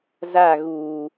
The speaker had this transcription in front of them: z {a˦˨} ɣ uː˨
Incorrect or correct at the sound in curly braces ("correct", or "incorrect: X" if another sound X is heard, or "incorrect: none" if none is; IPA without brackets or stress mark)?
correct